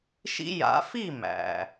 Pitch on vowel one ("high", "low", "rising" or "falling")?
high